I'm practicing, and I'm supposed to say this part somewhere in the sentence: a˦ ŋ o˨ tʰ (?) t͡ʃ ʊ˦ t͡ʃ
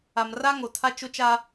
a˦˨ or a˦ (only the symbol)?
a˦